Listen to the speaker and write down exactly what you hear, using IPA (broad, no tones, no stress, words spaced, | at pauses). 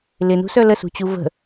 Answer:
lɪnṳsœ ləsṳt͡ɕu və̤